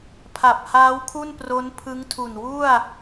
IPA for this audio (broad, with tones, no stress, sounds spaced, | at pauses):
pʰ a˨˩ p̚ h aː˦˥ w kʰ u˥˩ n p r o˦˥ n pʰ ɯ˦˥ ŋ tʰ u˨˩ n w u˥˩ a̯